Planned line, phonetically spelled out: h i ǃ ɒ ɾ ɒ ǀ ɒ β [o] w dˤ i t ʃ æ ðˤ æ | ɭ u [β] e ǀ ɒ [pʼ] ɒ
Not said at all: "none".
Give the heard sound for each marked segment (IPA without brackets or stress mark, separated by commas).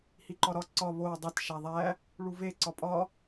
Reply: o, v, pʼ